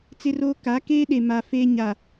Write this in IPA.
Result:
t͡s ɪ˦ r oː˦ k a˨˦ k eː˦ ɗ e˨ m a˨ f e˦ ɲ a˨

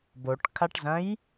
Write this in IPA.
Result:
b o ʈ kʰ a ʈ z ɐ̃ j

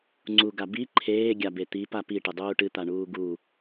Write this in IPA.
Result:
ŋ͡ǀ u ɡ a b i ǃʰ eː ɡʲ a b e t̪ i p a p i ʈ ɨ dˤ uː ʈ ɨ t̪ a ɳ uː ɡ u

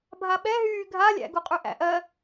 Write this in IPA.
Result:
bʱ a ɓ ɛ ɦ yː ɡʱ a lʲ æ̰ ɡ u qʼ y ʔ æ̰ ʔ ɜ

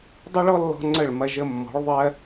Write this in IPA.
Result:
dˤ ə˦ ɭ ɔ˦ lː ɔ̤˧ ŋ͡ǀ ə˦˨ ɭ m ɐ˧ ʒ ə˧ mː ɔ̤˨˦ ɭ ðˤ ɜ˦

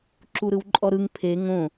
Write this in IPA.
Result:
ǁ u ɾ ɯ w ǃʼ ɔ ɾ ɯ ŋ pʰ e ŋ õ

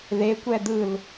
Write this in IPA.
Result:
ð e kʷ ɛ d̪ ɯ l

